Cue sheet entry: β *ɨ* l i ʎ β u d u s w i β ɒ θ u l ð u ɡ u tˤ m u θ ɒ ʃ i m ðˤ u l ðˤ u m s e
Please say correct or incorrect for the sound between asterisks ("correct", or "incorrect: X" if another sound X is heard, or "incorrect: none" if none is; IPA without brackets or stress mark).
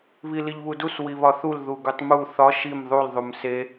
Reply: incorrect: i